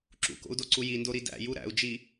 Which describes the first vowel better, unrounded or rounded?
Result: rounded